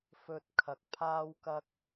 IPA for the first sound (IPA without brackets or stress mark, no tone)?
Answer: f